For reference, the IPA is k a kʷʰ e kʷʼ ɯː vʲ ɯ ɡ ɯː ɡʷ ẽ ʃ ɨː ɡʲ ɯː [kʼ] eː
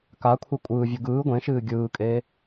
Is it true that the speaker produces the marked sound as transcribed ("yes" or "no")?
yes